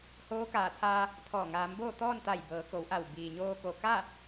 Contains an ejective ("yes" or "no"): no